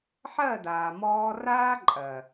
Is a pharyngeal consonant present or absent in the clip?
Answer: present